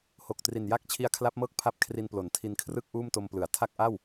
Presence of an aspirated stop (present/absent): present